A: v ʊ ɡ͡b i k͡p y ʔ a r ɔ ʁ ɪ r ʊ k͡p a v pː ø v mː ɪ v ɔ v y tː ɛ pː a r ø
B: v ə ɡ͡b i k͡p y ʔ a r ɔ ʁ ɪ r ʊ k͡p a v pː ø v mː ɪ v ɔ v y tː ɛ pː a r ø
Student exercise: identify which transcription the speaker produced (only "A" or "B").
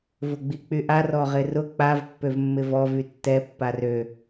A